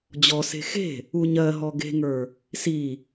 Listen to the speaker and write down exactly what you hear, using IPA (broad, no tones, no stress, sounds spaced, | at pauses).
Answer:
d͡ʑ ɔ s e̤ x e̤ | u ɲ ɜ ɦ ɔ ɡ e̤ ŋ ə˞ | s i